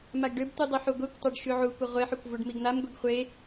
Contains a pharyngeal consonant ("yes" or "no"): yes